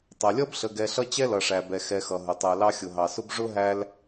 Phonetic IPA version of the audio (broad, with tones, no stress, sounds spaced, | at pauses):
tˤ ʌ˩ lʲ ʌ˥ b ɬ ə˨ ɡ ɛ˨ ɬ ʌ˦ t͡ɕ ɛ˥ l ʌ˩ ʂ æ˩ b ɛ˩ x ɛ˨ x ʌ˩ ɦ ʊ˩ tˤ æ˨ l ɑ˦ xʲ ʊ˨ ɦ ɑ˨ s ʊ˥ b ʐ ʊ˥ ɦ æ˦ l